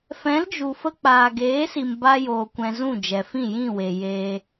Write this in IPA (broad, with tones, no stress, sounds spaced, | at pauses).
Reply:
f ɛ̃˨˦ l d͡ʒ u˨ f ə˧ k͡p aː˨ ɡ eː˨˦ s i˨ m b a˧ j oː˨ kʷ ɛ̃˧ z ũ˦˨ d͡ʒ ɛ˨ f ĩ˦˨ j ĩ˦˨ w e˨ j e˧